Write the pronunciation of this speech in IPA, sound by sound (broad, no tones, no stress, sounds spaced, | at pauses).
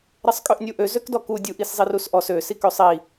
ɾ ɛ sˤ kʼ ø ʔ nʲ u ʔ ø z ø k d ɔ k u dʲ u ʔ i s zˤ i r u s ʔ ɔ s ø s i k ø sˤ i